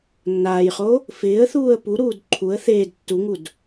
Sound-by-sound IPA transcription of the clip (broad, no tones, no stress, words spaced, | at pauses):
nːaːjχo | fɪːə̯ θuːə̯puɾuːd ǃʰuə̯ θeːd tːuŋud